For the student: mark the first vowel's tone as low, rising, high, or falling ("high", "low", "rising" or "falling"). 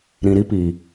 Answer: low